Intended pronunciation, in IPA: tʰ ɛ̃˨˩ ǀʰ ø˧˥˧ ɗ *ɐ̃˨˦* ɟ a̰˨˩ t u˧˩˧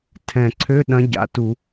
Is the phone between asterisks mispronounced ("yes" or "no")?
no